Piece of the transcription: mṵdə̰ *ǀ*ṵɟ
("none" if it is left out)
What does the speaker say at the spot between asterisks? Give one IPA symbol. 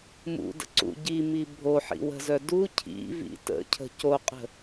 ǀ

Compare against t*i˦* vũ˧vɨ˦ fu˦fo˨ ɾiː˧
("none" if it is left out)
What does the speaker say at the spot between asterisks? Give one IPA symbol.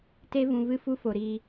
e˦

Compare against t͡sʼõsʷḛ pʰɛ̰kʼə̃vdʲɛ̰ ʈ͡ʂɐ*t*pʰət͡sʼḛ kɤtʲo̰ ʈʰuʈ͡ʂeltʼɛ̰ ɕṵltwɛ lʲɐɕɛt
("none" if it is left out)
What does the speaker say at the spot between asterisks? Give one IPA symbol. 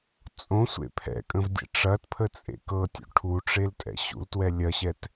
t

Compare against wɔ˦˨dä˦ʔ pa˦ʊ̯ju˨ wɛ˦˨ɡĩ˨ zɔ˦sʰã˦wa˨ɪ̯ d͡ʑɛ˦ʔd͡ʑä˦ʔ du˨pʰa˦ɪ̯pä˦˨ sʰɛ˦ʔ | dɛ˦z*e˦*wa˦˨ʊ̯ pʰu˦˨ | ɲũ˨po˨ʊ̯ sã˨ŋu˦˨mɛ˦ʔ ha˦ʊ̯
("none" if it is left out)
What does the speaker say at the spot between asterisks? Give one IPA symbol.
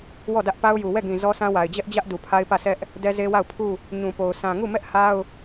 e˦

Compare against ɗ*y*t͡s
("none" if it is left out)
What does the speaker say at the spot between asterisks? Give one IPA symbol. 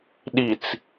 i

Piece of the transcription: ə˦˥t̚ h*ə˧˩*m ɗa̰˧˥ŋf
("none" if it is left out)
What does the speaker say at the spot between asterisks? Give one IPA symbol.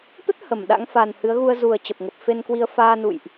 ə˧˩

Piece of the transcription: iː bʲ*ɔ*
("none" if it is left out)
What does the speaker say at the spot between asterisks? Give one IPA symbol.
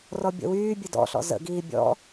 ɔ̰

